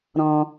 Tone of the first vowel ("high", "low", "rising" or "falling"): low